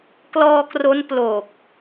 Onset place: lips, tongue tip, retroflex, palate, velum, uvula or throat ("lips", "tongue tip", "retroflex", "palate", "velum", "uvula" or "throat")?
velum